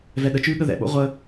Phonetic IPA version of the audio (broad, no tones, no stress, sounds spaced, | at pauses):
v ɛ ɗ ə t͡ʃ ʉː ɠ ə ð ɛ̰ ɓ o̰ ʁʷ ə